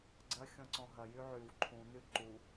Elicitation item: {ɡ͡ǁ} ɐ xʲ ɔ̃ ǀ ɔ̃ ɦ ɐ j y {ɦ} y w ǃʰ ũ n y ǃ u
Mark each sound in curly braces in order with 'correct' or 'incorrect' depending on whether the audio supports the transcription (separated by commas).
incorrect, incorrect